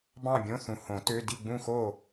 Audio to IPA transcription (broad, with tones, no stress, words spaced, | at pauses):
bɑ̃˥˨bʲõ˧˥˧θũ˨ hõ˨˩˦ tø˧˥˧ di˥˨ɡ͡bũ˥˨xo˥˨